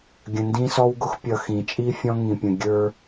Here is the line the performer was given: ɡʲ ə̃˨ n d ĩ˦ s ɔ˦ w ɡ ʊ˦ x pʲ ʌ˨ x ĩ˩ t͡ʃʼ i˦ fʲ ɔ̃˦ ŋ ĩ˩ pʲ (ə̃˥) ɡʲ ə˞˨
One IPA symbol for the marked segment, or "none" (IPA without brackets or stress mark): ə̃˩